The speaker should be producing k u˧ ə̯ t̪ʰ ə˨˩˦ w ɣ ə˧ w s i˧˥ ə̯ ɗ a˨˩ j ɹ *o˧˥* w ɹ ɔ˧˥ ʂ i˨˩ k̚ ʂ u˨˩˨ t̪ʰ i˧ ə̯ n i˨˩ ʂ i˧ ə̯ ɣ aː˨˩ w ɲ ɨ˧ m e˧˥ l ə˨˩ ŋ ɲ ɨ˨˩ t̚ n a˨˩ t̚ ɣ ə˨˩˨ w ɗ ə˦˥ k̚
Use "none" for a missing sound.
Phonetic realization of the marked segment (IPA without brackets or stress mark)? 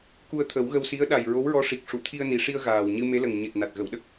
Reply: o˧˥